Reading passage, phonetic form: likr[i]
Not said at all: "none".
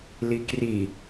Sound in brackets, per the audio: i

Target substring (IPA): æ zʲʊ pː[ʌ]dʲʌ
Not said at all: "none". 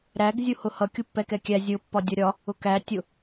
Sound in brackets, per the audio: ɒ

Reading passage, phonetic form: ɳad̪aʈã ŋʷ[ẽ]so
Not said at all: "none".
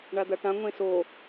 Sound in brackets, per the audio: ẽ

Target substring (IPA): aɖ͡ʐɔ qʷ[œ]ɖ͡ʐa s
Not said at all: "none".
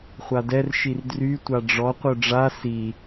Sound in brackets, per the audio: œ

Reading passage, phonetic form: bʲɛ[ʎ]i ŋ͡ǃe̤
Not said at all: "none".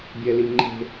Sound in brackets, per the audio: l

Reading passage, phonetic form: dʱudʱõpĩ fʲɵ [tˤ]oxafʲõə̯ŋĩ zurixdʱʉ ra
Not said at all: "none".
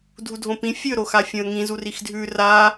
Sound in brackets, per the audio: ɾ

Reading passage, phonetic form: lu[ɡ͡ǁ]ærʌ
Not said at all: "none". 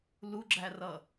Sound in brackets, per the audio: ɡ͡ǁ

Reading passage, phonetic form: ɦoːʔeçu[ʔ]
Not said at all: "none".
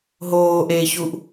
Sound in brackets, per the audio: ʔ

